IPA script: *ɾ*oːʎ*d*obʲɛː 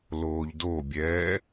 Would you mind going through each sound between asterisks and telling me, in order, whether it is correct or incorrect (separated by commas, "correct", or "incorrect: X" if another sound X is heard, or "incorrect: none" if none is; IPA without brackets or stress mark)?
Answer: incorrect: l, correct